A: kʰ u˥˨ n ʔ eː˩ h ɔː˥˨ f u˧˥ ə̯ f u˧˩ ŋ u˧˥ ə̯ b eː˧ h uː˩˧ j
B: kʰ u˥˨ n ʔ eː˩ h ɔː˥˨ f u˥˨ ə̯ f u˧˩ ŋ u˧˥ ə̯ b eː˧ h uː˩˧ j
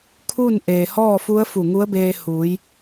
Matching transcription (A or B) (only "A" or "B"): A